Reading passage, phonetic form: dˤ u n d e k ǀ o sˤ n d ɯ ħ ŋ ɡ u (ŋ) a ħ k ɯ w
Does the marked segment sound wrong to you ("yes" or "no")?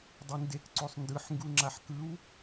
yes